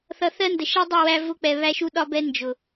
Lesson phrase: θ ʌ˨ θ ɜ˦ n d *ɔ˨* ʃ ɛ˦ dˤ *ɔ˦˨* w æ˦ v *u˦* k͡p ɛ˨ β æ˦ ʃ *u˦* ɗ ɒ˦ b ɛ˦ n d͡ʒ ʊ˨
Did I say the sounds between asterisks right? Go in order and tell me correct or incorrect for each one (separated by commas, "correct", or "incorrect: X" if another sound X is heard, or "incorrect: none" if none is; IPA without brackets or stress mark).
incorrect: ə˨, incorrect: ʌ˦˨, incorrect: ʊ˦, correct